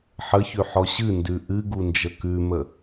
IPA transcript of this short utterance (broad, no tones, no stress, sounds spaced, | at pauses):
ħ ə ç ʉ ħ ɔ ɕ ɨ n d ʉ ʔ ɨ ɡ u n d͡ʒ ə k ʉ m ə